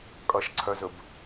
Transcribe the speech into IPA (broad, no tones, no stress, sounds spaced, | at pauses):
kʼ ʌ ʃ ǀʰ œ z ɵ b